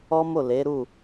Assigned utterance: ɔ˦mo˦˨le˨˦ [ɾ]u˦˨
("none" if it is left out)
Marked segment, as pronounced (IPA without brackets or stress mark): ɾ